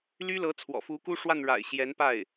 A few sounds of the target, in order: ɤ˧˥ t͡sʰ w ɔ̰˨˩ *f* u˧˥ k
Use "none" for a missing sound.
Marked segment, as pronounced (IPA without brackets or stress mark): f